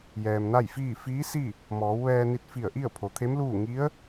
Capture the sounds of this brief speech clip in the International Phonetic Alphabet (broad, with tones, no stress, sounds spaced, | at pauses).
j ɛː˩ m n a˥˨ j f iː˥˨ f iː˧˥ s i˥˨ | m ɔː˩˧ w ʋ ɛː˧ n i˧ t̚ f i˧˩ ə̯ ʔ i˥˨ ə̯ pʰ o˩˧ t̪ʰ e˧˥ m l uː˥˨ ŋ i˧˥ ə̯